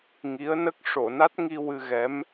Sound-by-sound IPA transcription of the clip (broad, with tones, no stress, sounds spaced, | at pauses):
ŋ i˧˥ ə̯ n ə˦˥ k̚ ʂ o˨˩˨ n a˦˥ t̚ ŋ i˧ w ɨ˧ ɣ ɛ˧˥ m